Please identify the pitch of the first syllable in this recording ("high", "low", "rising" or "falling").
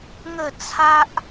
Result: falling